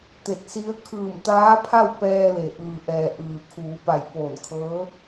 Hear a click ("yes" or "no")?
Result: no